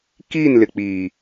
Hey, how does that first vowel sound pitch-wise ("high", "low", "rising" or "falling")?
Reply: falling